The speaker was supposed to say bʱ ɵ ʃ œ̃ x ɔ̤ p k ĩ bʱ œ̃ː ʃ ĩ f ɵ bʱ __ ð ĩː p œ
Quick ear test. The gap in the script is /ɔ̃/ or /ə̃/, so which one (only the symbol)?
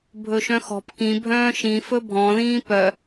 ɔ̃